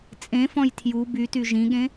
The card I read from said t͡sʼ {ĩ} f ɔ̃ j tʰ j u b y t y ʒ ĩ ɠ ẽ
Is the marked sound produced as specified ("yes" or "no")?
no